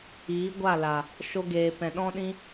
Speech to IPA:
iː˨˦ɡʷa˦˨la˨ | ʃo˧ɡeː˨pɛ̃˨ ɗɔ̃˦ɗĩ˦

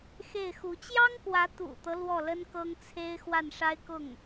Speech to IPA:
xe˥˩ɪ̯xu˧˥ t͡ɕjɑ˥ŋkwä˧˥ t̪ṵ˨˩t̪ɤ˦ lwɔ˥˩lə˥n kɤ˥ŋt͡sʰe˥ɪ̯ xwa˥˩nʂa˥ɪ̯kʊ˥˩ŋ

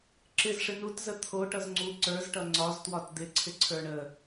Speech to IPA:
ǁɪzʂɪ nutzə t̪ʰoʈʌz ŋ͡ǀu ǀə˞zʈʌ ŋ͡ǀɒztwɒt d̪ɪǀʰɪǀʰə˞ ɳə

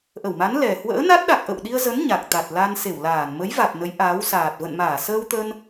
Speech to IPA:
ʔə˧˩wma˨˦n lɛ˨˩ hwə̰ː˧˥na˦˥t̚ɗa˨˩k̚ ʔə̰˧˨wɗi˧ə̯ zə˨˦n ɲa˨˩k̚t̪a˨˩t̚ la˧nse˧˩wlaː˧˩n mə˨˦jva˨˩t̚ nə˨˦jʔaː˨˦wsaː˨˩t̚ və̰˧˨nmaː˧˩ səː˧wt̪ə˧n

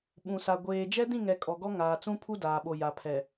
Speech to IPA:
ɓũ˨sa˨ ɡʷeː˨ d͡ʒɛ˦dĩ˦˨ŋɛ˨ kʼɔ˨ɡɔ˦ ŋaː˨t͡sũ˦pʰu˦ daː˨ɓo˨ ja˨pʰɛ˨

